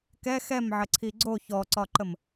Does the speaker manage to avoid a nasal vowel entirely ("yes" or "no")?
yes